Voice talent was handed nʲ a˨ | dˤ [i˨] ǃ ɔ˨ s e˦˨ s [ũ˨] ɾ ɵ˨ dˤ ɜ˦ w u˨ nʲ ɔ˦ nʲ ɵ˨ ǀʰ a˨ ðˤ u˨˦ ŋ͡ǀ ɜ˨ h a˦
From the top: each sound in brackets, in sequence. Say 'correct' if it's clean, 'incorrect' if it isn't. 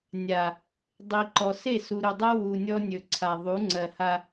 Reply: correct, incorrect

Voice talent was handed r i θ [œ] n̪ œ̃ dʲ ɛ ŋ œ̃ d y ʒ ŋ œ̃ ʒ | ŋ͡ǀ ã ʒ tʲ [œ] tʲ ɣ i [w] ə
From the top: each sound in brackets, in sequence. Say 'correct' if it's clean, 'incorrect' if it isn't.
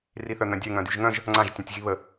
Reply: correct, incorrect, incorrect

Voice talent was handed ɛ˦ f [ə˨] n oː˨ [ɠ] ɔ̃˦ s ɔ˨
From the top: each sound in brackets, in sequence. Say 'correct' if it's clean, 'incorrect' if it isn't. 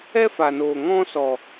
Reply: incorrect, incorrect

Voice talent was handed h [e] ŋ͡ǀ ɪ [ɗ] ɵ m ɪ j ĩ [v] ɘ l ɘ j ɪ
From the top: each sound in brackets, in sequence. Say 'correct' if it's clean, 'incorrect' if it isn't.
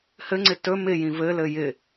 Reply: incorrect, incorrect, correct

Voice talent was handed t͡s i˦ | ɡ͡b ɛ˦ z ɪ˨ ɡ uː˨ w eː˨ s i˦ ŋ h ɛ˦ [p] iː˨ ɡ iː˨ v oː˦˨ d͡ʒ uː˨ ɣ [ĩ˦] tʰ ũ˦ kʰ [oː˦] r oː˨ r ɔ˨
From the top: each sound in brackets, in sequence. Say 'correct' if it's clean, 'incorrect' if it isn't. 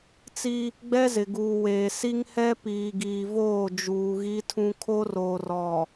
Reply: correct, incorrect, incorrect

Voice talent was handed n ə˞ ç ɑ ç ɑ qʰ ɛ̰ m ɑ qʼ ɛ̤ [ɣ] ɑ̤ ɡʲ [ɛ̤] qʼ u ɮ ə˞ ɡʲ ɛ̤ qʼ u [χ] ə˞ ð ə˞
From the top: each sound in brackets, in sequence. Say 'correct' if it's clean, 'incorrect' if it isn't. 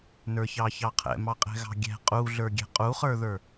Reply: correct, correct, correct

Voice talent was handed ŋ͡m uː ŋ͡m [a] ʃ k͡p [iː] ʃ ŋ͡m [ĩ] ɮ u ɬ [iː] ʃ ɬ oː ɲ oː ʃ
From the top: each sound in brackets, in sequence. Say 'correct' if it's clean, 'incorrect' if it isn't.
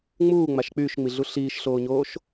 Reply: correct, incorrect, incorrect, correct

